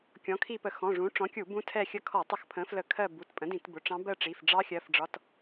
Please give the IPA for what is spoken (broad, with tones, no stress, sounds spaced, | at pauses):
kʲ ɔ̃˩˥ kʰ i˦˨ p ə˧˩˧ x ɔ̃˩˧˩ ʐ ũ˩˥ ʈ͡ʂ ɔ̃˩˥ kʲ u˧˩˧ b ũ˧˥ tʰ ɛ˦˨ xʲ ə˦˨ kʰ ɔ˧˩˧ tˤ ə˧˩˧ x pʰ ə̃˩˥ f l ə˧˩˧ kʰ ɜ˦˨ b u˩˧˩ t pʼ ə̃˩˥ d ĩ˧˩˧ t b ʊ˩˧˩ ʈ͡ʂ ɑ̃˧˥ b ɜ˦˨ ʈ͡ʂ i˩˧˩ f ɖ͡ʐ ɑ˧˥ xʲ ɜ˩˧˩ f ɖ͡ʐ ɒ˩˧˩ t